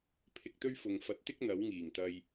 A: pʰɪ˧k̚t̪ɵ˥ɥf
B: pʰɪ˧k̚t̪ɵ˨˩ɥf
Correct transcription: A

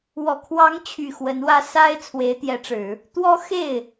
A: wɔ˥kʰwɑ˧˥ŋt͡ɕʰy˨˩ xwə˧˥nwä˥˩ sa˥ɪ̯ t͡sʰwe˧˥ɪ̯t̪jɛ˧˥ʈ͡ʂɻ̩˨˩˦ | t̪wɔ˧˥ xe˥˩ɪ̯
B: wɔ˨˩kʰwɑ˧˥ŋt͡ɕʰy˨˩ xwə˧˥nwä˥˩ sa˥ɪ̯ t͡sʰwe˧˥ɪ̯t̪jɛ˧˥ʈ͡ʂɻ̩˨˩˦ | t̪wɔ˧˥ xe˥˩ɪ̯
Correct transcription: B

